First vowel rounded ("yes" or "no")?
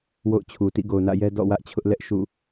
yes